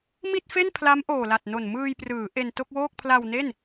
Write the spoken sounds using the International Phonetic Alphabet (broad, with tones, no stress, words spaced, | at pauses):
mi˥˩t̚fe˥˩npʰla˦˥m ʔoː˨˩la˨˩t̚no˨˩n mɯː˧jprɯː˩˦ ʔe˧nto˥˩k̚woː˥˩k̚ pʰla˧wne˥˩n